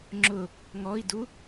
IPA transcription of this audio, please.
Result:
ŋ͡ǁ ʊ | ŋ ɔ i̯ d u

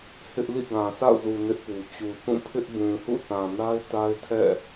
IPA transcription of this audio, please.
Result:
h ɪ˦ ʔ l ḭ˦˨ ɡ ã˨ sʰ a̰˦˨ ʊ̯ z u˨ n ɪ˦ ʔ p u˨ t͡ɕ u˨ θ ũ˦˨ pʰ ɪ˦ ʔ b ũ˨ h ṵ˦˨ θ ã˨ n a˦ ɪ̯ t a˦ ɪ̯ tʰ ɛ̰˦˨

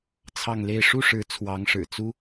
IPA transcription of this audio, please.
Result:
t͡sʰ ɑ˥˧ ŋ l e˥˧ ɪ̯ ʂ u˥˩ ʂ ɻ̩˧˥ t͡sʰ w ɑ˧˥ ŋ ʂ ɻ̩˨˩ t͡s u˥

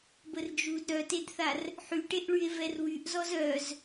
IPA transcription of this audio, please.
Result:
b ə r d͡ʒ u d ɾ œ t e d θ a r | ħ y ʈ e ʔ ɭ y e̯ v ɛ r w y ʔ z ɔ z œ z

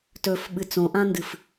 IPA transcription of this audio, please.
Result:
t ɵ f ɓ ɨ t͡s õ ʔ ã n d ɨ f

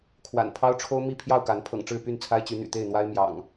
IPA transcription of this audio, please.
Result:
kʰ w a̰˨˩ n pʰ ɑ˦ ʊ̯ ʈ͡ʂʰ o˦ ʊ̯ m i˥˨ pʰ j ɑ˥˨ ʊ̯ k a˨˦ n pʰ ɤ̰˨˩ ŋ ʈ͡ʂ ɻ̩˥˨ p y˥˨ n t͡sʰ a˦ ɪ̯ t͡ɕ y˨˦ n̪ y̰˨˩ t̪ e˥˨ ɪ̯ n̪ w a˦ ɪ̯ m j ɑ̰˨˩ ŋ

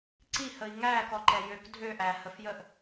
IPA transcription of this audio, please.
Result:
ǀ i h ə i̯ ŋ æ k ɔ ǃ ɛ j ø k dʱ ø ʔ æ h ə f j ə ʔ

